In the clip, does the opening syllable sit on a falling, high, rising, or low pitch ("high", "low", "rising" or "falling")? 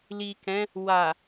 low